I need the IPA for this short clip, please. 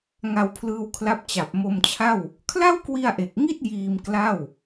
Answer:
ŋ a˧ w pʰ l ɯː˧ w kʰ l a˦˥ p̚ t͡ɕ a˨˩ p̚ m o˧ m t͡ɕʰ a˥˩ w | kʰ l a˥˩ w k w i˧ a̯ ʔ e˨˩ k̚ ŋ i˥˩ t̚ j iː˧ m k l a˥˩ w

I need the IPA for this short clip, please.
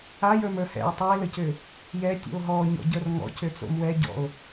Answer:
a j ə˞ m ə˞ h ɛ̰ e̯ tˤ u e̯ l ə c ʏ | j ɛ tʲ ṵ o̯ ɦ ɔ ɲ ɔ̰ ɟ ə˞ r ŋ ɔ̰ c ʏ t͡s o̰ m w ɛ ɟ ɔ̰ o̯

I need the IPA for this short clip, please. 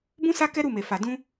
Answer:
b ũ˦ s a˦ k ɛ˦ ɾ u˦˨ m e˨ f a˨ d ũ˧

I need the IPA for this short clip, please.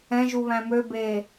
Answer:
ɛ̃ ʒ u β æ̃ m ø b e

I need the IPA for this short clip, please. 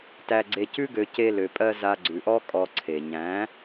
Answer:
t æ˧ ɡ͡ǀ e˧ c ʉ˦ ɡ ø˧ c e˧ l ø˨ pʼ ɜ˧ z a˧ ɡ͡ǀ ʉ˨ ʔ ɔ˦ kʼ ɔ˧ ǀʰ e˨ ɲ æ̃˨˦

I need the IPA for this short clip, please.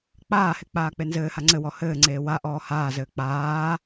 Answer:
k͡p aː h e k͡p aː k͡p e n z ɘː h a ŋ͡ǀ ɘ w ɔ h ɘː ŋ͡ǀ eː w a ʔ ɔː h aː z ɘː k͡p aː

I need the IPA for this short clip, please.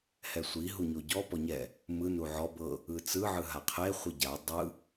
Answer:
h ɛ sʷ i ɦ u ɲ o ɟ ɔ p ɔ ɲ ɛ | m ɯ n u ʕ ɔ b ɤ | ɯ t͡s ɯ ʕ ɯ ɦ a qʰ e χʷ i ɟ a dˤ ɯ

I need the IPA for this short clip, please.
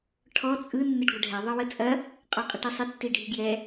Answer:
ʈʰ ɔ t͡sʼ ɯ nː ɪ ɖ ɡʷ ɐ ɖʱ ɛ ðˤ ɯ w ə t͡sʼ ɐ | qʼ ɔ qʼ ə ʈ i sˤ ɪ tː i ɖʱ i ɡ j ɛ

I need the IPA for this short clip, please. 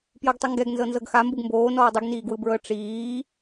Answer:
p j ɤ ɡ tˤ ɯ ŋ ɡ ɛ ɡ n z ɤ n z ɤ ɡ x a m b u ɡ m b oː n ɔː dˤ i ɡ n iː ɡ w ɯ b ɹ ɤ ʈ͡ʂ iː

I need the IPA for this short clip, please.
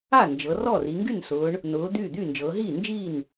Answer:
a˥˩ n d͡ʒ ɤ˩˧ r ɔ˥˩ r i˩˧ ŋ ɡ y˥˩ n s ʊː˩˧ ɳ | n ʊː˩˧ d̪ yː˥˩ d̪ yː˥˩ n d͡ʒ ɤː˩˧ ɦ iː˥˩ n d͡ʒ iː˥˩ n

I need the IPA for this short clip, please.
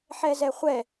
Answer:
ħ ɛ z ɛ χʷ ɛ

